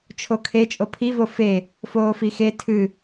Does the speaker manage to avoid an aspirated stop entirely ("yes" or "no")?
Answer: no